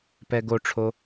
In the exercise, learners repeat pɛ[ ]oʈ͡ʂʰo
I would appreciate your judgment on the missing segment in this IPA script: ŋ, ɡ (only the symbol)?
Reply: ɡ